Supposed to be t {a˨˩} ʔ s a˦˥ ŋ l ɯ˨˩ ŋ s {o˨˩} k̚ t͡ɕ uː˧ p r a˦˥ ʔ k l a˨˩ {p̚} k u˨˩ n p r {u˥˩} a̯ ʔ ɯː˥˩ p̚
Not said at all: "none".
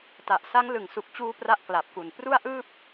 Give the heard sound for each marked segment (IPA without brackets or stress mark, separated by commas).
a˨˩, u˨˩, p̚, u˥˩